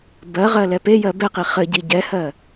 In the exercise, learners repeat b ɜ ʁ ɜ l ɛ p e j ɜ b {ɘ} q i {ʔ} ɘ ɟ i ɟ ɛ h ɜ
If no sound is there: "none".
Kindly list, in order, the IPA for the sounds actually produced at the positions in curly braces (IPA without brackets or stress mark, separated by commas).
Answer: ɛ, χ